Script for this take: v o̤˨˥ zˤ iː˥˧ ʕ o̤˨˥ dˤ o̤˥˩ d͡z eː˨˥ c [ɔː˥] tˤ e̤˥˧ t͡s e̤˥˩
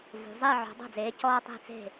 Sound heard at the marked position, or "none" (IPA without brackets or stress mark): ɔː˥